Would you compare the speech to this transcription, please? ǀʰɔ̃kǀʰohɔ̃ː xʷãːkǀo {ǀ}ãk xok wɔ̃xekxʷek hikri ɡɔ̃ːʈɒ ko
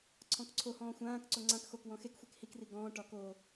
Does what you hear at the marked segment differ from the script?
yes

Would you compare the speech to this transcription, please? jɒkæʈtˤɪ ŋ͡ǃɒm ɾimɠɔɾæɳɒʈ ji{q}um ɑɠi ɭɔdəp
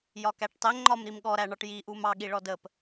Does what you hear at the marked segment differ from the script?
yes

